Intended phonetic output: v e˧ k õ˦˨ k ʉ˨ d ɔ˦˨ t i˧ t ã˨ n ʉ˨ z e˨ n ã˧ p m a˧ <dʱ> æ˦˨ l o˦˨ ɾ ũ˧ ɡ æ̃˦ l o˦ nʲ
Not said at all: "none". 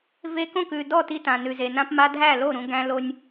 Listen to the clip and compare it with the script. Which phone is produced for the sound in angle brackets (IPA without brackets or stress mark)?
dʱ